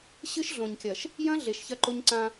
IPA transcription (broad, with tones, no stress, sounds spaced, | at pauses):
ɕ ɨ˦ ʃ ɮ õ˨ ɲ kʲ ɐ˨ ʃ | j ɐ̃˦ ɮ e˨ ʃ ç ɐ˦ ǃ o˦ ɲ ǀ ã˦